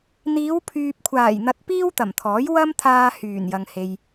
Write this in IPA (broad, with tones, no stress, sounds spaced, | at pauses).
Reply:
n̪ iː˨˧ w pʰ yː˨ p̚ kʷʰ aː˨˩ j n̪ ɐ˧ t̚ p iː˥ w t̪ ɐ˨˩ m t̪ʰ ɔː˨˥ j w ɐ˥ m t̪ʰ aː˧ h yː˨˩ n j ɐ˨ ŋ h e˨ j